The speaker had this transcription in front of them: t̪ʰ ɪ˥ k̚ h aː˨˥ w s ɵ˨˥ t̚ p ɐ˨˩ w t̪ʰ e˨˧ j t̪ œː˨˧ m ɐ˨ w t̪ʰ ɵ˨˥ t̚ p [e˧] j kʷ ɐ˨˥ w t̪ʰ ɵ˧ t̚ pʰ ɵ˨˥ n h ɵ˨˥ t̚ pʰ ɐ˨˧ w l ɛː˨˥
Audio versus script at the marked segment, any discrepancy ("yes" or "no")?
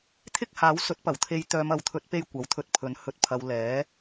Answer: no